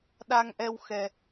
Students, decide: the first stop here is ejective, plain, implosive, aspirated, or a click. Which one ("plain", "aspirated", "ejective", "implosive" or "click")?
implosive